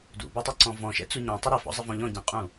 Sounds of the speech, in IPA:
d ṵ b ɔ tˤ ʌ ǀ ɔ̃ v ɔ̃ ʃ ɛ̰ t͡s u ɲ ɔ̃ tˤ ʊ ɾ ɪ f ɔ̰ zˤ ɪ v ɔ̃ ʎ ɔ̃ ɟ ɛ̃ qʼ ũ

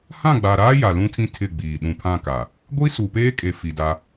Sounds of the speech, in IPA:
h ã˦˨ ɡ͡b a˨ ɾ aː˦ j a˨ l ũ˦ tʰ ĩ˦ tʰ ɪ˦˨ ɡ͡b iː˨ ɗ ũ˨ pʰ ã˦˨ k a˨ | ɡʷ i˦ s u˨ p eː˦ kʼ e˨ f i˨ d a˦

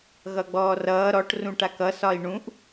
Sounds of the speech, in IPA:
ɣ ʌ ɡ͡b ɔː r ʌː ɾ ɔ ʈ r ũ ʈ a k ʌ s ɒ i̯ ɳ ũ ʔ

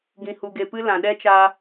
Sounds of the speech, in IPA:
ɡ ĩ˧ h u˧ ɡ e˧ p ɨ˦ l ã˨ ɗ ɛ˦ t͡ʃ a˧

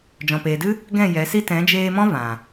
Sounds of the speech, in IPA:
d͡ʒ ɔ̃˨ p eː˨ d ɨ˦ | ɡ ɛ̃˦˨ j ɛ˨˦ s i˦ t ɛ̃˨˦ d͡ʒ eː˧ m ɔ̃˦ v ã˨

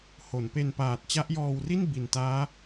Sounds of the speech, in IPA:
h o˩˦ n p e˧ n p aː˨˩ t̚ t͡ɕ a˦˥ ʔ j ɔː˧ w r i˥˩ n b i˨˩ n t aː˦˥

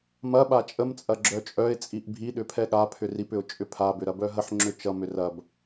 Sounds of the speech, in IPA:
m ɐ ɓ a t͡ʃʼ ə m t͡sʼ ɐ ɡ͡ǁ œ t͡ʃʼ œ ɪ̯ t͡sʼ i ʔ bʱ i ɗ ʏ pʰ ɛ ɠ a pʰ ʏ r i p ʏ ʊ̯ t͡ʃʼ ʏ pʰ a b ʏ ɾ ɐ b œ ɦ ə ħ ŋ͡ǁ ʏ t͡ʃ ʌ m ʏ r ɐ b

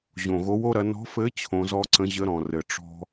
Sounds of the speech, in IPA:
ʑ õ˨˩ ɣ o˨˦ w o˦ ɾ ɐ˨˦ n ɔ̤˨˦ f ɘ˨˦ t͡ɕʰ õ˨˦ z ɔ˦ ǀ ə̃˨˦ ʑ ə˨˦ ɾ ɔ̃˨˩ r ɘ˨˩ ʈ͡ʂ ɔ̤˦

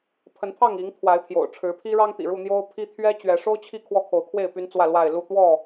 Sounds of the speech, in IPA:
pʰ ə˨˦ n pʰ ɑ˥˨ ŋ i˨˦ ŋ t̪ʰ w a˨˦ ɪ̯ pʰ j o̰˨˩ ʊ̯ ʈ͡ʂʰ ɻ̩˨˦ pʰ i˦ ɻ ɑ˦ ŋ t̪ ḭ˨˩ ɻ u˥˨ n̪ j o˦ ʊ̯ pʰ i˦ t̪ʰ ɥ ɛ˦ t͡ɕ ɥ ɛ˨˦ ʂ o˦ ʊ̯ t͡ɕʰ i˥˨ kʰ w ɔ˦ kʰ o˨˦ ʊ̯ kʰ w e˥˨ ɪ̯ p y˦ n t͡s w ä˥˨ l w a˥˨ ɪ̯ l u˥˨ t̪ w ɔ˥˨

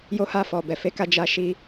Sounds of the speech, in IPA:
j o˧ h a˧ f ɔ˨ b ɛ˨ f e˨˦ k a˧ d͡ʒ a˧ ʃ i˧

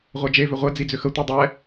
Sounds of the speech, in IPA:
ʁʷ ɛ d͡ʒ e v ʏ ʁʷ ɛ d͡z i d͡z ʏ x ə tʷ i dˤ ɛ

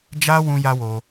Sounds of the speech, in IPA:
d͡ʒ a˦ w ũ˦ j a˦ w o˧

